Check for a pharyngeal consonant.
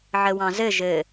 present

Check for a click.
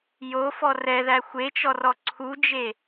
present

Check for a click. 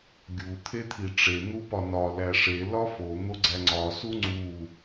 present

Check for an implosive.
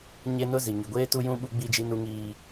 present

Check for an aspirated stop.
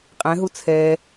present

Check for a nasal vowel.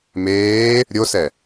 absent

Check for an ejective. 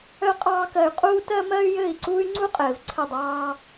present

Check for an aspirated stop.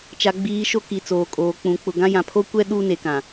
present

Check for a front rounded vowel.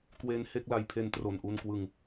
absent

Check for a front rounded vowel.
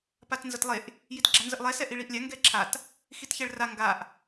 absent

